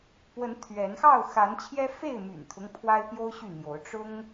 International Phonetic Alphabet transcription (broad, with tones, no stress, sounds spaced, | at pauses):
p w ə˨˦ n t̪ʰ ɥ ɛ˨˦ n x ɑ˥˨ ʊ̯ x a˨˦ n t͡ɕʰ j ɛ˦ f e˥˨ ɪ̯ m y̰˨˩ n t̪ʰ ʊ˦ ŋ pʰ w a˦ ɪ̯ p j o˦ ʊ̯ ɕ y˥˨ n̪ j o˨˦ ʊ̯ ʈ͡ʂ ʊ˦ ŋ